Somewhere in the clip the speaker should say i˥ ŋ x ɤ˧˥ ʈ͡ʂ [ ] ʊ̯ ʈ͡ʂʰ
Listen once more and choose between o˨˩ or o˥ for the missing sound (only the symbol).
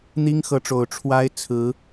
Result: o˨˩